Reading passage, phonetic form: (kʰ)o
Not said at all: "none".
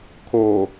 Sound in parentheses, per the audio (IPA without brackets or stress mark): kʰ